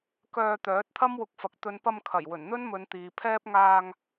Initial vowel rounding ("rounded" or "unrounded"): rounded